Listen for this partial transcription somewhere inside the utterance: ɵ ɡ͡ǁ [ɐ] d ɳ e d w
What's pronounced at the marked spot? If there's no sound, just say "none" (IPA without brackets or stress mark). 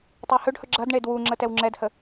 ɐ